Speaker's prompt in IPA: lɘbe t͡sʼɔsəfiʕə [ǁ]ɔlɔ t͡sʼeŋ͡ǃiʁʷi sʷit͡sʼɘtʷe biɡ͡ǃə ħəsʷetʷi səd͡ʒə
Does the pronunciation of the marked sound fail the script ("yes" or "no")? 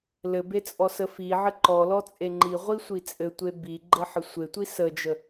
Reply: yes